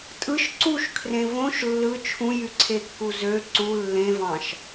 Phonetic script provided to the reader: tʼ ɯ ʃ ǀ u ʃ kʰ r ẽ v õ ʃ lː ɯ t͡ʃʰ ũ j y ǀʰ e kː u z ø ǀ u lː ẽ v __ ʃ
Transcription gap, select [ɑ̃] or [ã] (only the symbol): ɑ̃